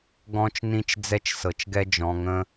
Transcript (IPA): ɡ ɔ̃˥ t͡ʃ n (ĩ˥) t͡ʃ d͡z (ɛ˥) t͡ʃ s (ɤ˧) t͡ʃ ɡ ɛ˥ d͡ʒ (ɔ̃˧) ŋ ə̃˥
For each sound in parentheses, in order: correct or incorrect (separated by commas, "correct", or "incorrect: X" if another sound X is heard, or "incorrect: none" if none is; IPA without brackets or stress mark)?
correct, correct, correct, correct